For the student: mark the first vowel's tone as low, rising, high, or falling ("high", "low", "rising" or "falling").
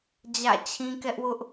falling